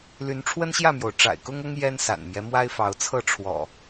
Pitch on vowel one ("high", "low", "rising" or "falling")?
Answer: rising